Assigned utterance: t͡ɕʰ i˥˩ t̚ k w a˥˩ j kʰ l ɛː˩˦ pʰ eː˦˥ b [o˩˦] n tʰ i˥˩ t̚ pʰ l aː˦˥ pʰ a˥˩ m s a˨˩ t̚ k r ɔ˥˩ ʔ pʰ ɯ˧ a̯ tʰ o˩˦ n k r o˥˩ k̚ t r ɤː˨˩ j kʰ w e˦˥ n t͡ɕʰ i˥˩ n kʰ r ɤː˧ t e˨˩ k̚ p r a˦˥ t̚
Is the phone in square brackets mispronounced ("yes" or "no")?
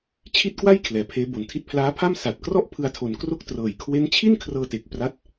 yes